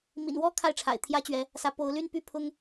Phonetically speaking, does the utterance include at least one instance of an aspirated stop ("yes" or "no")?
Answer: yes